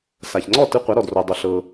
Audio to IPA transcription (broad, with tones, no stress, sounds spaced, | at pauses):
s a˩ ç ŋ͡ǀ ɔ˥˩ t ɯ˧ qʷ a˩˥ ɾ ɔ˩ d r o˩ dˤ o˩ ɬ ɤ˩